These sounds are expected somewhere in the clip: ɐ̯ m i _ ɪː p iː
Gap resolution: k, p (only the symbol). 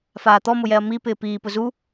p